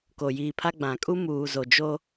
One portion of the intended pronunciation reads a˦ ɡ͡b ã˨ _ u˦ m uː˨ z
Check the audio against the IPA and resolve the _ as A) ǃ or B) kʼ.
B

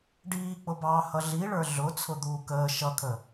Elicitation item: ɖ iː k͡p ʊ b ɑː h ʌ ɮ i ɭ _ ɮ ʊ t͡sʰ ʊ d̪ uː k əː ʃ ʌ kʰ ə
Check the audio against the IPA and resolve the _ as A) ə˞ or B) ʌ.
A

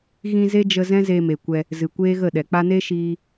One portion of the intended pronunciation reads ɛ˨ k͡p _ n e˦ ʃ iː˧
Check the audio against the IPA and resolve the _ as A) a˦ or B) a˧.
B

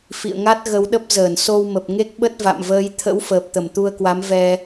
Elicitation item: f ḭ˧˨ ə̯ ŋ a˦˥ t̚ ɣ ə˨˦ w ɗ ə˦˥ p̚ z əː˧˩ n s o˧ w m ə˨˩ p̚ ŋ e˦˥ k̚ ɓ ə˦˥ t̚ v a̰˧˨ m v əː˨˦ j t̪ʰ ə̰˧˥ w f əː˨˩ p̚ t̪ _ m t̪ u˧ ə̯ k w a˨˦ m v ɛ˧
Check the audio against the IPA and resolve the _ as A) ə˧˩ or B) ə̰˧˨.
A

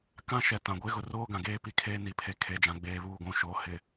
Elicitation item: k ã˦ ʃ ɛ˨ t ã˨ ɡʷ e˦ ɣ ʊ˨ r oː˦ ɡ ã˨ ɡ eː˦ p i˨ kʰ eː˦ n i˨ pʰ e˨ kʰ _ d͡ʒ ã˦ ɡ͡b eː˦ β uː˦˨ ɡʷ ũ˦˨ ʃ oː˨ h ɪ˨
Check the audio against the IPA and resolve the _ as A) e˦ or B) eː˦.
A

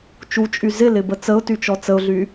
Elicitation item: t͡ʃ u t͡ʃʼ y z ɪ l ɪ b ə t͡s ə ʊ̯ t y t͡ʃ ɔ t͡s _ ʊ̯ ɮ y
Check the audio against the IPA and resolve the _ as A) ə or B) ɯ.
A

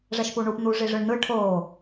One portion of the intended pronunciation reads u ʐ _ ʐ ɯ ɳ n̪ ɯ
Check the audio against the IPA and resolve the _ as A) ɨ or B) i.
B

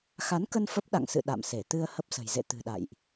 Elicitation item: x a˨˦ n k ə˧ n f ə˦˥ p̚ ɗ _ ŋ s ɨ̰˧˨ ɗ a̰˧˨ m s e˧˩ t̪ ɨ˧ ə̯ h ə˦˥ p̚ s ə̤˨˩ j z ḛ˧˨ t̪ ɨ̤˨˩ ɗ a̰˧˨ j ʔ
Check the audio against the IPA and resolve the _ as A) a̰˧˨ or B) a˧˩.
A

